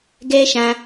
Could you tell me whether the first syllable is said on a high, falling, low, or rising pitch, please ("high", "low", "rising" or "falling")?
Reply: high